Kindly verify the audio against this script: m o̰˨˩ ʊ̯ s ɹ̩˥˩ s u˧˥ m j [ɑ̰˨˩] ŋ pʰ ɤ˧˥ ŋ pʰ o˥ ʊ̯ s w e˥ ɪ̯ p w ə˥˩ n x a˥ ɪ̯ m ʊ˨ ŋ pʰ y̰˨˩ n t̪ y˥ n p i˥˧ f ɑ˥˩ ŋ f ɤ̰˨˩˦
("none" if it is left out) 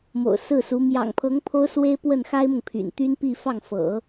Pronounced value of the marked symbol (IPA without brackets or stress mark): ɑ̰˨˩